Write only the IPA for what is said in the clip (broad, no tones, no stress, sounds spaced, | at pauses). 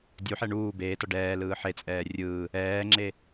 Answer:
dʲ u ħ ɛ ɳ uː b eː t ɔ ɖ ɛː l ɯː ħ e t͡sʼ ɛː rʲ ɯː | ɛː ŋ͡ǁ e